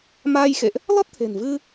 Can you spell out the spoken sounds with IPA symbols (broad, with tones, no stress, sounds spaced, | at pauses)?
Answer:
m aː˧ j x ḛ˧˨ ʔ | l ɔ˦˥ t̚ t̪ʰ e̤˨˩ n v ɨ˧